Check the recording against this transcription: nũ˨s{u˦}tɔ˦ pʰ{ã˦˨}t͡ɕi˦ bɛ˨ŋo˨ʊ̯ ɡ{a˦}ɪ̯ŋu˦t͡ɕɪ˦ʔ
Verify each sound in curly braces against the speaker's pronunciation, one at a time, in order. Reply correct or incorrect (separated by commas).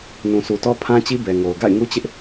incorrect, incorrect, incorrect